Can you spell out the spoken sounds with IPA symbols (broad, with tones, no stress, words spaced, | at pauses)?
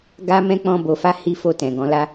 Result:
ɡa˦mɛ̃˦ k͡pɔ̃˧bo˨fa˧ hi˦fo˦˨tɛ̃˨ ɡɔ̃˨˦la˦